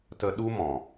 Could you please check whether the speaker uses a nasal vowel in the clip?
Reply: yes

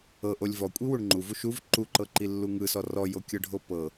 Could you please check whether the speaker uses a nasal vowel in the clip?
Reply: no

